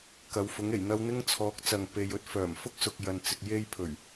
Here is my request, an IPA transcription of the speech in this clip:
kɐ˨˧wfʊ˨˥ŋe˨˩j n̪ɐ˧w n̪ɪ˥ŋt͡sʰɔː˨˥k̚t͡sɐ˨ŋ pe˨jɵ˧t̚ fœː˨˩m fʊ˥k̚sʊ˨k̚jɐ˨nt͡sɪ˨k̚ je˧jpʰɵ˨˩ɥ

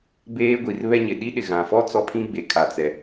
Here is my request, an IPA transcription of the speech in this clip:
beː˦ɡʷi˨r βɛ˦ɲɪ˨ ɗi˦ɗɪ˨ɣã˨fɔ˦ t͡sɔ˦pʰĩ˦ɡ͡be˨ kʰa˨t͡sɛ˨

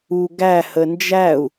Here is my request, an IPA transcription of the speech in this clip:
u ɡæ hənd͡ʒæu̯

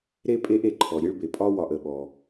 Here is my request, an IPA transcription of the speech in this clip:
ɾe˦pʼe˦ʔe˩ǃʰɔ˩ ɾʲe˦ɭbe˩pʼɒ˥wɒ˨ʔ ə˩ɓɔ˩

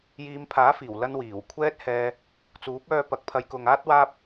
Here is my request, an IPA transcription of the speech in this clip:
jiː˨˧mpʰaː˨˥fiː˨˩w lɐ˥nwiː˨˩w kʷʰɛː˥t̚hɛː˧ | t͡suː˨˥p̚œː˧ pɐ˨k̚pʰɐ˨˧jkʊ˨ŋaː˥t̚ waː˥p̚

